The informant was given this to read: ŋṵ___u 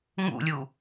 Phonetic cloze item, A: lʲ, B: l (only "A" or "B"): A